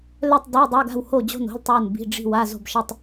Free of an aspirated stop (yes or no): yes